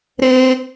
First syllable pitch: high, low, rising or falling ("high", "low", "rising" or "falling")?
low